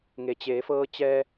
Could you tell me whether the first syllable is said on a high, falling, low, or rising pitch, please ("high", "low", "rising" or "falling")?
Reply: low